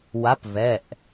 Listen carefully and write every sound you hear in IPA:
wa˨˥pvɛ˩˧˩ʔ

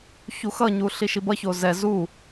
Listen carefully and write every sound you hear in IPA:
çuxʌɲu ɬiʃibʌço zɛ zu

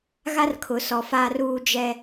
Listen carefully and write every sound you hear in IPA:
ɣa˦rkʰʊ˨sɔ˨ fa˦r uː˦d͡ʒɛ˦

